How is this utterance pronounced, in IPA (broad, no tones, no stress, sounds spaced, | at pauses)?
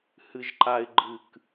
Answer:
h ɨ ʒ ǃ a ɪ̯ ɡ͡ǃ ɨ k